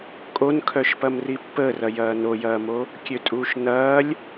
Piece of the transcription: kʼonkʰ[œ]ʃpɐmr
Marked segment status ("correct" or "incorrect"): correct